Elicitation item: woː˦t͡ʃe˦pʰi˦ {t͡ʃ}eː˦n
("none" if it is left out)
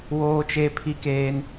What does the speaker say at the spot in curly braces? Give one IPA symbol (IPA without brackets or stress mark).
k